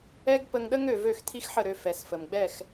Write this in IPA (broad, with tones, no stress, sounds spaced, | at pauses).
ɛ˦ ɡ p ə˧ ŋ ɗ ə˦ ŋ ø˨ v ø˦˨ x tʰ i˦ x ħ ə˦˨ ɾ ø˧ f ɛ˨ s f ə˨ m ɡ͡b ɛ˦˨ x